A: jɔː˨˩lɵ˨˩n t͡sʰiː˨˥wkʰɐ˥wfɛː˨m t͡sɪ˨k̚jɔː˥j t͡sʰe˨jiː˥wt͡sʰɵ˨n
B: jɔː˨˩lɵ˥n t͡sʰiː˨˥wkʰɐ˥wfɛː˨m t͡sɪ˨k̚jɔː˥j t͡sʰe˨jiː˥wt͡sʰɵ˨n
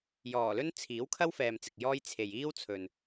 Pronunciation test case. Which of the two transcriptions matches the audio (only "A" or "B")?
B